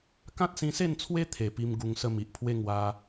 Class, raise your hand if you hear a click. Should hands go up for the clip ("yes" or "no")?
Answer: no